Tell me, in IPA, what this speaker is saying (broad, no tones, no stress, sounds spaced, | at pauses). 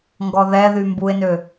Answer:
ŋ ɡ ɔ ð ɛ ð y m b u e̯ n ø